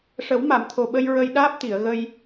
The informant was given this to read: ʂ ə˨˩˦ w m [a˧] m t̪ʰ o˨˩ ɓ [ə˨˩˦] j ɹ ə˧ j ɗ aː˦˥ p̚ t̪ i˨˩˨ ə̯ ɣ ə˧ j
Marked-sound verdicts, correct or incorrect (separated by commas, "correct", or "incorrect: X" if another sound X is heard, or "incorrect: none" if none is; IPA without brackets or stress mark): incorrect: a˨˩˨, incorrect: ə˧